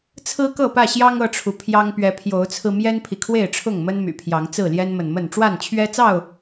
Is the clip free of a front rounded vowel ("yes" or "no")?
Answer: no